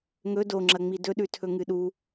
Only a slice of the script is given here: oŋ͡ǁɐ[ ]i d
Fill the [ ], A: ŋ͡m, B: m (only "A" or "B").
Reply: A